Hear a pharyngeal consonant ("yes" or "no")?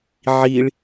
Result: yes